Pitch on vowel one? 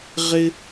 high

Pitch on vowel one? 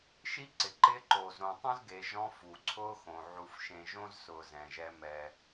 high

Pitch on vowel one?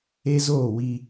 high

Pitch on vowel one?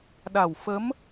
low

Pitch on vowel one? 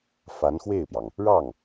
rising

